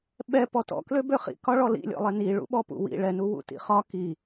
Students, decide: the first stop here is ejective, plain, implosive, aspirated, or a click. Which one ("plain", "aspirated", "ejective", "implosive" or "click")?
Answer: implosive